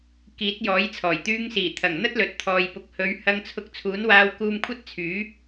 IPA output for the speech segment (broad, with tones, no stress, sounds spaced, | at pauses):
k iː˨˥ t̚ j ɔː˨˥ j t͡sʰ ɔː˨˩ j t̪ yː˧ ŋ s iː˨˩ t̪ʰ ɐ˨˩ ŋ n̪ ɐ˥ t̚ l ɵ˨ t̚ t̪ʰ ɔː˨ j p ʊ˨ k̚ h ɵ˨˧ ɥ h ɐ˧ ŋ t͡sʰ ʊ˧ k̚ t͡sʰ uː˨˥ n w aː˧ w k uː˧ m kʷʰ ɐ˥ t̚ t͡sʰ yː˨˥